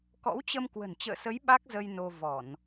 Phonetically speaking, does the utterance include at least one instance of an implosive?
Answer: yes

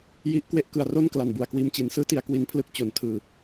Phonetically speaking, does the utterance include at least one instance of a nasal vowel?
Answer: no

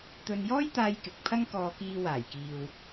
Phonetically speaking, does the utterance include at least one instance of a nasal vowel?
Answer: no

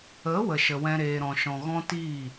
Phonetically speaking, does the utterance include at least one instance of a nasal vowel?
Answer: yes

